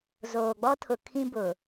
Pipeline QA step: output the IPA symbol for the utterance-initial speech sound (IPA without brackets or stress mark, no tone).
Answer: z